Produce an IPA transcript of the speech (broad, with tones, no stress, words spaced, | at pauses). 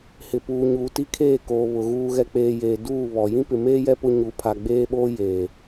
hɪ˨puː˨ ɲuː˨ti˦kʰeː˦˨ koː˨βʊ˨ ɣuː˨ɣɛ˨k͡peː˨ jeː˨ duː˦˨βɔ˨ jĩ˦pɪ˨meː˦jɛ˦ pʊ˦ɲu˨˦ pʰa˨ɡ͡beː˦ɓoː˦ jeː˨